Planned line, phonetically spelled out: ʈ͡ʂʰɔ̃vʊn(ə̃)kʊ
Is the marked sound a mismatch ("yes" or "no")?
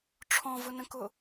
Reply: no